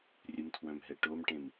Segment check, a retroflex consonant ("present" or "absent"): present